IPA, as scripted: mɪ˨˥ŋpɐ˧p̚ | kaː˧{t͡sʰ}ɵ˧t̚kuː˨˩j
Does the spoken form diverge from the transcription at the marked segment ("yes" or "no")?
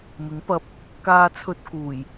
no